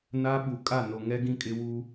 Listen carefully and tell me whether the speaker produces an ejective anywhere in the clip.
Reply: yes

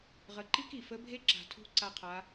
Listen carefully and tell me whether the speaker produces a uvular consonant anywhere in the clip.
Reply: yes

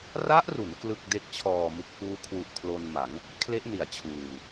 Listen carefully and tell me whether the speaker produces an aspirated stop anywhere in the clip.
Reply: yes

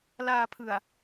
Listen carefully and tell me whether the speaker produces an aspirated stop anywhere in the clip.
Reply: yes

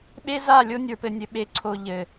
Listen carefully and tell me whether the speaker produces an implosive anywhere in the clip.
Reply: yes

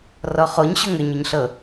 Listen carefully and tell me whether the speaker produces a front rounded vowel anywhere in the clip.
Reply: yes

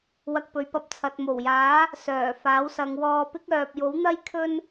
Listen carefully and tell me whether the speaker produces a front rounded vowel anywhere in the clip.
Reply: yes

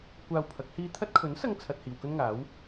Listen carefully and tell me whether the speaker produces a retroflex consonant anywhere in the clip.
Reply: no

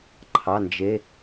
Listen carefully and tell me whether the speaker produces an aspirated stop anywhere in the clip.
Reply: yes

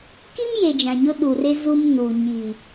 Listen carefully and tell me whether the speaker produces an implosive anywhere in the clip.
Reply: yes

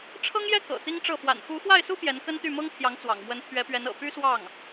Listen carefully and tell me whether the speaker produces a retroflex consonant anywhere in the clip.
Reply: yes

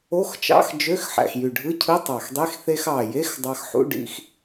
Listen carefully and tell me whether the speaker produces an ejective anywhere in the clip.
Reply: no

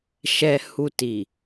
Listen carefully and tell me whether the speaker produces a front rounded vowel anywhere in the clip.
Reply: no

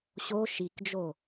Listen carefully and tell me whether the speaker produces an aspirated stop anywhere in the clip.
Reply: no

